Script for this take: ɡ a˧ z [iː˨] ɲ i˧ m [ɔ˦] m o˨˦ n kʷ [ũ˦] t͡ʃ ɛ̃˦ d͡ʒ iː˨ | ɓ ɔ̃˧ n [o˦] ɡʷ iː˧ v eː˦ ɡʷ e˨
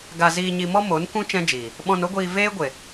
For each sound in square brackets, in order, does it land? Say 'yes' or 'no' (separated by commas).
no, yes, yes, yes